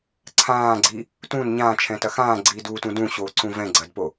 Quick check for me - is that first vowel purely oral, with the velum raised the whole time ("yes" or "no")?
no